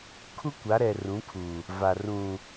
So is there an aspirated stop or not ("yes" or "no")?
yes